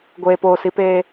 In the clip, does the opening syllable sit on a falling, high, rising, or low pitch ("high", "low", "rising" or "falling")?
low